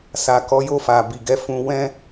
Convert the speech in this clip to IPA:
sa˨kɔ˨˦ jo˦˨fa˨bi˨ɡɛ˧ fũ˧wɛ̃˦

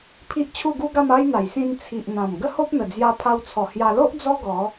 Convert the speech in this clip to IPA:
pʰi˦ʔt͡ɕʰu˥˧ɡu˦ɡa˥˧m a˦jn̪a˨˩j sĩ˧n t͡sʰi˨ʔ n̪ã˨˩mɡə˦ho˦p̚ n̪ə˨˩d͡zja˧pʰa˧wt͡sʰɔ˨˩ hja˧ lo˦ʔ d͡zɔ˦ɡɔ˨˦

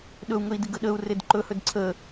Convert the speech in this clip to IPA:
ɗɵu̯ŋɵi̯dɪ ɡəɗəu̯red ǃɵhɵd ǀʰə

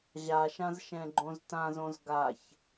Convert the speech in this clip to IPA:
ʑaʃãz ʃɛ̃ɡ͡ǃõztãzõz ɡaç

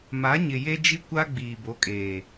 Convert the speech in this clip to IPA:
ma˨˦ɲɪ˨je˦ d͡ʒi˦kʷa˦ɡ͡biː˨ bo˨˦kʼeː˨

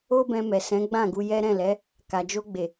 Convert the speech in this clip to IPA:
o˦bɛ̃˧ mɛ˨sɛ̃˨˦ ɡ͡bã˦˨ɡu˧ jɛ˦ɾɛ̃˦˨lɛ˨˦ | ka˨d͡ʒo˧ɡ͡be˨

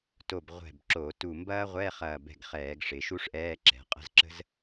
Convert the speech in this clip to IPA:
to˧˩b ʁʷɛ̤˧˩bǁo˧˩˧tu˧˩ mbɐː˥ʁʷɛː˧˥˧χɐː˧˩bɛ̤˧˩ɡ χɛː˧˩˧ɡʂɪ˩˧ʃu˥ʂʔɛː˧˥˧ ǁɛ̤˩˧qʼə̤˧˥˧zǁə̤˥z

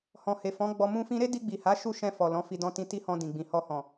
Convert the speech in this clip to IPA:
hɔ̃˨he˨fɔ̃˨˦ ɡ͡bɔ˧mũ˦ fĩ˧ɾe˦di˧ ɡ͡bi˨ha˨˦ʃu˦˨ ʃɛ̃˧fɔ˨ lɔ̃˨˦fi˧ dɔ̃˧tĩ˧ ti˦hɔ̃˧ dĩ˨ɡ͡bĩ˨ hɔ˧hɔ̃˨

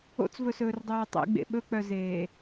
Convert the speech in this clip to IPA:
o̰t͡svɵsɵːrdˤɵːɹ tˤḛɡ͡bḛ ɓɵk͡pœzeː

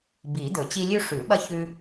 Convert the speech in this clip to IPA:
bi˨˩˦d̪ɵ˨˩˦t͡ɕi˦ lʲʉ˦ʂʉ˨˩˦ɓɐ˦ çʉ˦

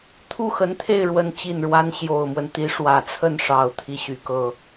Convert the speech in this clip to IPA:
t̪ʰu˥˩xə˧˥nt̪ʰe˥˩ɪ̯ ɻwə˥nt͡ɕi˥˩nɻwa˥n ɕjo˨˩ʊ̯mwə˦nt̪i˧˥ ʂwä˨˩t͡sʰə˥˩nʂɑ˨˩ʊ̯ t̪ʰi˥˩ɕy˨˩kɤ˥˩

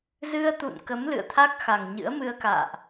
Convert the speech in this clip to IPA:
zɨ˧ə̯t̪ṵ˧˨n kə˨˦mlɨ̰˧˨ə̯t̪ʰa˦˥k̚xa˨˩ŋ ɲɨ̰˧˥ə̯mɨ˧ə̯ka̰ː˧˨ʔ

